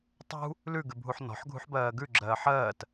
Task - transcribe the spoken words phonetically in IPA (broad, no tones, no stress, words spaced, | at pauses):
tˤṳ | lʉɡʉbʱuħ nɔ̤ħɡʱṳħbɜː ɡʉɡ͡ǁɜː ħɜːt